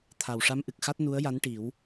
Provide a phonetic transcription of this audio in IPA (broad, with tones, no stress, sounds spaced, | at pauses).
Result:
t̪ʰ a˨˩ w ʂ a˧˥ m ʔ ɨ˨˩ k̚ x a˦˥ t̚ n u˧˥ ə̯ j a˧˥ n ʈ i˨˩˦ w